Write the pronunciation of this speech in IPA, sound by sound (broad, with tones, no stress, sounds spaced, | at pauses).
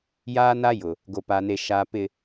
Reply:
j aː˦ n a˦ j ʊ˨ | ɡ o˨ p a˨ n e˨ ʃ a˨ p ɪ˨